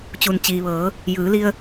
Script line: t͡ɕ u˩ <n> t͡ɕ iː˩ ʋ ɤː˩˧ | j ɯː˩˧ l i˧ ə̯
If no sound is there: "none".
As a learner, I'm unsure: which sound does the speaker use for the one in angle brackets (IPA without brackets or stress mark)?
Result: n